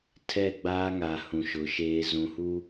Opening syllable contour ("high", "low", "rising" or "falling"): falling